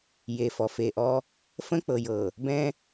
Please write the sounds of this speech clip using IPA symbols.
j e˨ f ɔ˨ f e˨ ʔ ɔ˦ | f ə̃˦ k͡p ɤ˨ j ɤ˨ | b ɛ̃˦

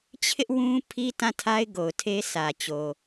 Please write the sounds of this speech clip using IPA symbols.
t͡ɕʰ ɪ˦ ʔ w ũ˦ pʰ i˦ t ã˦˨ tʰ a˦ ɪ̯ ɡ o˨ ʊ̯ tʰ e˦ s ä˨ t͡ɕ o˨

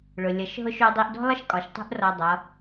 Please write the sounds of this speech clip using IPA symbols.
ɭ ʊ˩ lʲ ʌ˩˧ ʃ ɦ ʊ˧ ʃ u˧ dˤ i˧ ʔ d ɔ̤˥ lˠ ə˥ ʃ kʼ ɒ˩˧ ʃ tˤ ṳ˥ ʔ r ɔ˧ dˤ ʌ˩˧

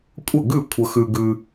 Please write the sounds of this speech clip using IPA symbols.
kʷʼ ə˥˩ ɡ ʉ˥˩ kʷʰ ə˧ x ʉ˧ ɡ ʉ˧

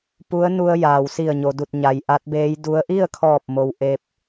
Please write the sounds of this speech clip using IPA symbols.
p u˧˥ ə̯ n u˧ ə̯ j aː˩ w s i˧˩ ə̯ ɲ o˩ d u˧˩ t̚ ɲ a˩ j ʔ a˧˥ t̚ b eː˧˥ j d u˧˥ ə̯ ʔ i˥˨ ə̯ kʰ ɔː˧˩ p̚ m o˩ w ʔ e˧ p̚

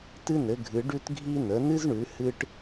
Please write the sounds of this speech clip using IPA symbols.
t ɨ˦ n ɘ˩˧ ɡʱ ɨ˩˧ ɖ ʉ˦ t ɡʱ i˦ n ə˩˧ n ɨ˦ z ɳ ʉ˩˧ h ɨ˦ ʈ

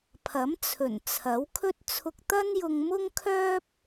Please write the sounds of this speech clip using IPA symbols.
pʰ ɐ˨˥ m t͡sʰ ɵ˨˩ n t͡sʰ ɐ˨˥ w kʰ ɵ˥ t̚ t͡sʰ ʊ˧ k̚ t̪ ɐ˥ n j ʊ˧ ŋ m ʊ˥ ŋ kʰ œː˥ p̚

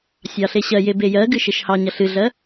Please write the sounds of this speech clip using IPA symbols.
sʲ ɑ ɬ e ɕ ɜ j e b e j ɜ ɡ ɨ ʃ e ʃ h ɑ ɲ ɐ ɬ ɨ ɮ ɜ

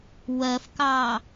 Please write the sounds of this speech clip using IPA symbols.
w ɜ f k ɑ

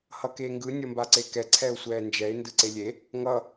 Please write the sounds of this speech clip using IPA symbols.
h ʌ k eː ŋ ɡ ɯ nʲ ʌ m b a ǀ e k ɛ ǀʰ ɛ ʊ̯ sʷ ɛː n d͡ʒ ɛ ɪ̯ n d ɯ ǀ e lʲ e | ŋ ʌ

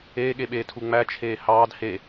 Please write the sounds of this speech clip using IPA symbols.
eː ɠ e ɓ eː tʰ u ŋ͡m æ t͡ʃʰ eː h ɑː d h e

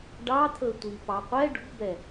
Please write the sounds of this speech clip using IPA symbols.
ɖ ɑ t̪ʰ ɵ tʷ i p ɑ qʷ ɛ ɖ ṳ b ɛ

